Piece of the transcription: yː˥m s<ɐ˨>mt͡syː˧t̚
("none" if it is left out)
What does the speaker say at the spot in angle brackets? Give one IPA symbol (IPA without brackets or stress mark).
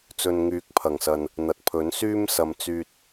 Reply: ɐ˨